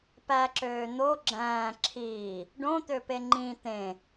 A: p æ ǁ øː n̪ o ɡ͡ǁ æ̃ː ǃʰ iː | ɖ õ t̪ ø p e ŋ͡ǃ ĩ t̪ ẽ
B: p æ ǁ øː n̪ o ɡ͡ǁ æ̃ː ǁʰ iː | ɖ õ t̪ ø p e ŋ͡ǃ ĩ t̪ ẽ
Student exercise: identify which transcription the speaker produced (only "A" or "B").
B